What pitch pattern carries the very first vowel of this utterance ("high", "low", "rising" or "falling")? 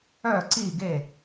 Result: falling